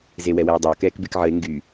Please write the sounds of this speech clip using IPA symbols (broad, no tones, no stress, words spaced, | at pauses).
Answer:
zewɛwɛwdˤəo̯ kɛːkbekʕəe̯ ŋɡy